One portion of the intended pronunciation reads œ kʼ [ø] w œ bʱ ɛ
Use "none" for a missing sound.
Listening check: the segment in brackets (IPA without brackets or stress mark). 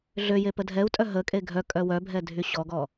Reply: œ